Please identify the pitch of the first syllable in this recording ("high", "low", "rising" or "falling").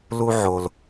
high